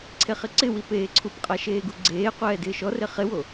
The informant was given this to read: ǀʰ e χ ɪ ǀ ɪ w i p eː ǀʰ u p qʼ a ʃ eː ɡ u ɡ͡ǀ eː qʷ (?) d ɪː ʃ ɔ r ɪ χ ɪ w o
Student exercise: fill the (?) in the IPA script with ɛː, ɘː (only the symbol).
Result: ɛː